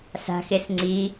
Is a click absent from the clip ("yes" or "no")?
no